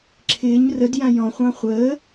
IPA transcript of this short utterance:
ǁʰɪːɲ rədjã jɔ̃χʷɑ̃ χʷəː

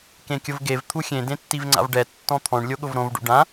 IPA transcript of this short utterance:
kẽkʲʊvɡev t̪ʰuxʲẽ dẽtːivŋ͡ǀa̰vɖɛ tːɔ̃t̪ʰɔ̃ɳ lʲoɠʊvɾõv ɖṵɖã

